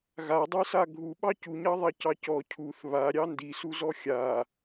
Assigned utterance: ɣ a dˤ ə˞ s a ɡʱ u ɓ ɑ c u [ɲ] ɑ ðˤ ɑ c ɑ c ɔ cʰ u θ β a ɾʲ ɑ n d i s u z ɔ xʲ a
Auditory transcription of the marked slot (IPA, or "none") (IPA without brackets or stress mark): ɲ